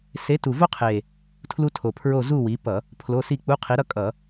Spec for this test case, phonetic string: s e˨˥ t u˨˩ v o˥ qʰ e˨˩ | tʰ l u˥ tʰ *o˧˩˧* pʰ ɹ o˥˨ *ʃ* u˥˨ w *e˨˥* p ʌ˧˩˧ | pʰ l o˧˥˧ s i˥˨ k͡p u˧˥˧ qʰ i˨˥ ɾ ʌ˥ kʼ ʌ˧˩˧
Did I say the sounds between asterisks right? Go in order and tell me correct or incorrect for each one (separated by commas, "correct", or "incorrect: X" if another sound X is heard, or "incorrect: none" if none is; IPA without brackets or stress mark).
incorrect: o˨˩, incorrect: z, incorrect: i˨˥